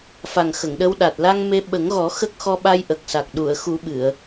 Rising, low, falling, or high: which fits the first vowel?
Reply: low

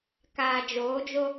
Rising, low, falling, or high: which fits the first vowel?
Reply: low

